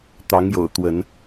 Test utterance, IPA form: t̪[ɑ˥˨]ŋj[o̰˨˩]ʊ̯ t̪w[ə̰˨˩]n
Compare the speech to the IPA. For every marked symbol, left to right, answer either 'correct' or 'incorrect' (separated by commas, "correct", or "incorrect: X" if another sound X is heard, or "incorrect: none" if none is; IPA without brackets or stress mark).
incorrect: ɑ˨˦, correct, incorrect: ə˨˦